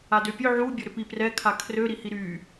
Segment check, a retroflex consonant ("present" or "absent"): absent